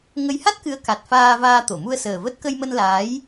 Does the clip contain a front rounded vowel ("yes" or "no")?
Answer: no